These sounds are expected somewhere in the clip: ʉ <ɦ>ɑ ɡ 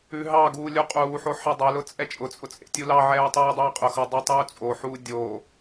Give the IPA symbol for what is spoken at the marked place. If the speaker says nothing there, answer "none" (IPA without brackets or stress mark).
ɦ